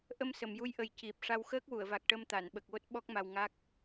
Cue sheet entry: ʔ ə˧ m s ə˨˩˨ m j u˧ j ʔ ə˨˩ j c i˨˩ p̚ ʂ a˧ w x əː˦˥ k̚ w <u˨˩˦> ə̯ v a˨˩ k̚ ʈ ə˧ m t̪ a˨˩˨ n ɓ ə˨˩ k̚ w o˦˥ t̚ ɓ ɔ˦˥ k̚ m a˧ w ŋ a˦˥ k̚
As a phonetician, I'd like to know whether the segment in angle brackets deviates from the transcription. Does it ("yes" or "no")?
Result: yes